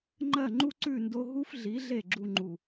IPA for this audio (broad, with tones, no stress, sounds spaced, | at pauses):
ŋ͡ǃ ɜ˦˨ ŋ͡ǃ u˦ ǀ ʉ˦˨ n d o˧ ɦ u˦ f ɮ i˨˦ ɮ e˦˨ ɡ͡ǁ u˧ ŋ͡ǃ u˨